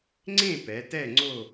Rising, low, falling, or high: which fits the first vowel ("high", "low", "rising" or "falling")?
falling